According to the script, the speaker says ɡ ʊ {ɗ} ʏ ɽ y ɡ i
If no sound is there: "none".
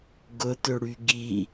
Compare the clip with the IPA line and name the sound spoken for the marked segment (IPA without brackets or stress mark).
t